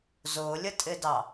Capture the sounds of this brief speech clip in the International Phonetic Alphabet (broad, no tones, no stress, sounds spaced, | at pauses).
z ʊː lʲ ə tʼ ɪ d ɑ